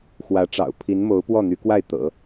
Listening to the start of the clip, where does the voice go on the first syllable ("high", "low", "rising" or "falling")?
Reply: rising